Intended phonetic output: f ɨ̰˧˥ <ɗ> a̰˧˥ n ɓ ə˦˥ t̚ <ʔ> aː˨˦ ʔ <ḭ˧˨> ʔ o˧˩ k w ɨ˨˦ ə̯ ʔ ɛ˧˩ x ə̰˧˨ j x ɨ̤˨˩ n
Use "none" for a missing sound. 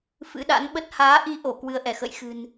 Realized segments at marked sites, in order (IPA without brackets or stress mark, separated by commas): ɗ, h, i˧